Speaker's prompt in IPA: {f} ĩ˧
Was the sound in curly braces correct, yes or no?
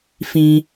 yes